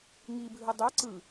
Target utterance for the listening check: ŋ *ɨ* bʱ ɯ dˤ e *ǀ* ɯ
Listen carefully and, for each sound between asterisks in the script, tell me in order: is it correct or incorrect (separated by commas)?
incorrect, correct